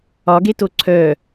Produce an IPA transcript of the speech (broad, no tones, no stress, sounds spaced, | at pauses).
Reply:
ɒ ɡ e t o ǀʰ œ